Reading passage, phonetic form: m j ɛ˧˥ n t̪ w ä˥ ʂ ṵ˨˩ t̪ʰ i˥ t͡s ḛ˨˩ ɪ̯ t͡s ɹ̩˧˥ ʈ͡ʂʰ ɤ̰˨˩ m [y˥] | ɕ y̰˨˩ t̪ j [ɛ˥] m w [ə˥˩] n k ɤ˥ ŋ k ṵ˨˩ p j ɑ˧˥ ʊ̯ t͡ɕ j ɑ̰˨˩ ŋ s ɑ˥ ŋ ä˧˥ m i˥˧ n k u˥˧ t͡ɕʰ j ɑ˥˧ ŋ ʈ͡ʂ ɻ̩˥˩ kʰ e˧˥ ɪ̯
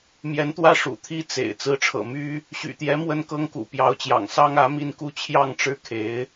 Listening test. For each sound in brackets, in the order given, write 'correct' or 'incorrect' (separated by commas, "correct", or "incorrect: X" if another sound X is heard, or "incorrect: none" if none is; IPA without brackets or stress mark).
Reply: correct, incorrect: ɛ˧˥, incorrect: ə˥